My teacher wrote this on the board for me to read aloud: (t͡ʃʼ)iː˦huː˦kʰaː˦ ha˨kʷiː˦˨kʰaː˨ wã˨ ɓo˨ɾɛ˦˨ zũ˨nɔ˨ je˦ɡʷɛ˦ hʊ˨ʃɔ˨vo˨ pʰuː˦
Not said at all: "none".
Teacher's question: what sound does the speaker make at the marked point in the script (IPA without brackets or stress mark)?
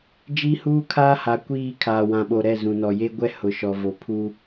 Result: d͡ʒ